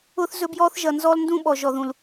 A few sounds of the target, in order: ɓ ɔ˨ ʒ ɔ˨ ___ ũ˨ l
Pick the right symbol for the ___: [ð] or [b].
ð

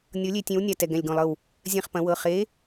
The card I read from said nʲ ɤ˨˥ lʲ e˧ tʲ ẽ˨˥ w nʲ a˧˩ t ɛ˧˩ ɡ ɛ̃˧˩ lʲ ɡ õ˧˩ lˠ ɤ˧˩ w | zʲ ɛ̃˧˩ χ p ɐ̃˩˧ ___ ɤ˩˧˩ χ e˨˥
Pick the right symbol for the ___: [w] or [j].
w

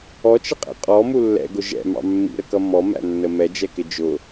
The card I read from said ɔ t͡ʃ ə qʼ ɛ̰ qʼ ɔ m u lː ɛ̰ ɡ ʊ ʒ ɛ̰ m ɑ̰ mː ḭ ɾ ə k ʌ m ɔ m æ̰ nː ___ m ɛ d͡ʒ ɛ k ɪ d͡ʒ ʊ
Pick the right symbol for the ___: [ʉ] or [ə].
ə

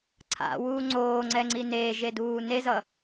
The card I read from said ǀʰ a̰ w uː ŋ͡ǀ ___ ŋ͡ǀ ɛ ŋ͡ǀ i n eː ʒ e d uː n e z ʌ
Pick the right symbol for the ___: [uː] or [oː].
oː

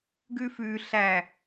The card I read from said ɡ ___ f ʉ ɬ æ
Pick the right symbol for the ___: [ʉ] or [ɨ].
ʉ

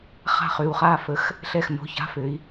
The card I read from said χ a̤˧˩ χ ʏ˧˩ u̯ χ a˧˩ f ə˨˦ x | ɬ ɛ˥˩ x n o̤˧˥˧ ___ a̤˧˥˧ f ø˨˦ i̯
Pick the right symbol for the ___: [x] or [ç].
ç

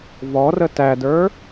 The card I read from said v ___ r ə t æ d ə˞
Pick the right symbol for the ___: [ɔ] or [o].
ɔ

